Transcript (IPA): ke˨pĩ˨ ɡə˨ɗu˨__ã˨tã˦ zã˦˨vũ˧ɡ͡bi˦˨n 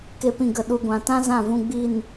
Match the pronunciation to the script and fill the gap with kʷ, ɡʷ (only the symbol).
ɡʷ